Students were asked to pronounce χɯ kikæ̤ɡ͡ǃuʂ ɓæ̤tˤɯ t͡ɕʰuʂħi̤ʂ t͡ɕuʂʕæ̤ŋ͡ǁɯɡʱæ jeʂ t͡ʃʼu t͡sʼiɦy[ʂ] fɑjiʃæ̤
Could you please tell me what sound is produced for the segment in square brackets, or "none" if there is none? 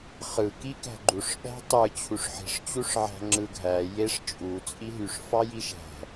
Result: ʂ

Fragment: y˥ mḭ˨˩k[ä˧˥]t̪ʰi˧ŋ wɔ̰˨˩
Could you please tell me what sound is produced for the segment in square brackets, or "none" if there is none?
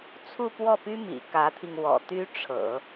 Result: ä˧˥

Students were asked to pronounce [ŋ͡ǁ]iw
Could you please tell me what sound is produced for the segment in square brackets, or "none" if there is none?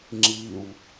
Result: ŋ͡ǁ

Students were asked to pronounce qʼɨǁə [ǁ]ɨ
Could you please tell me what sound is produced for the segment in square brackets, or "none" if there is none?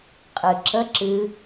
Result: ǁ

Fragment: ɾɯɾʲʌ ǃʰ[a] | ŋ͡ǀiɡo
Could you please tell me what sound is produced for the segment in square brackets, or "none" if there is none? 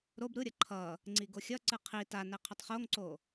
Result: ʌ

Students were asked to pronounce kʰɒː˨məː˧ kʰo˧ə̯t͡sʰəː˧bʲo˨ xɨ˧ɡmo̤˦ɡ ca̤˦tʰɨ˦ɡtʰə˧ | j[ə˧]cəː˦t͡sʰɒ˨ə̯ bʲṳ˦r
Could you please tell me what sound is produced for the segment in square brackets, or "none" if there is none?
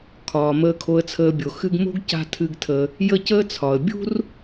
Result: ə˦˨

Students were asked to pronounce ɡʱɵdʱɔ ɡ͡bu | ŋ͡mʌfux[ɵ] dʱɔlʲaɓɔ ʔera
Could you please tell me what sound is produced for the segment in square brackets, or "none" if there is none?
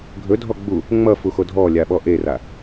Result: o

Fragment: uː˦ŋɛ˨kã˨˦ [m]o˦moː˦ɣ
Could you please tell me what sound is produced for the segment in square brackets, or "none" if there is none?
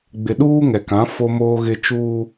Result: f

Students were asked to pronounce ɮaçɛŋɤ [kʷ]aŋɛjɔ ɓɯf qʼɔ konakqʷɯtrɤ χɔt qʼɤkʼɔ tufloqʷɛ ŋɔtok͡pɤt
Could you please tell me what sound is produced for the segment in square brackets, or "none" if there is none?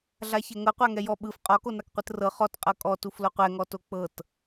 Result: qʷ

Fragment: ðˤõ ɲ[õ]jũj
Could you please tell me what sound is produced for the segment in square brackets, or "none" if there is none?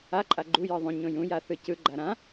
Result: õ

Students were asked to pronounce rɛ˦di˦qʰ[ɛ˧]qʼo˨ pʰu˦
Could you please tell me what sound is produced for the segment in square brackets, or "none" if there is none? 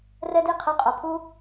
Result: ɛ˧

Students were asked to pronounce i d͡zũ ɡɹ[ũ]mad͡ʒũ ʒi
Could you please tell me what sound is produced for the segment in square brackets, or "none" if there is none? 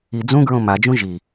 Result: õ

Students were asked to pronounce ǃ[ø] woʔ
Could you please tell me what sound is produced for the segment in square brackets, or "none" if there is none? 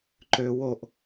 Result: ø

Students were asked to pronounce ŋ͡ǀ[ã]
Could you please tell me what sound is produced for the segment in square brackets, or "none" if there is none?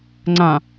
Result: ã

